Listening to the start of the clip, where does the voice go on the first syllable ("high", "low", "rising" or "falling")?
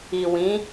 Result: low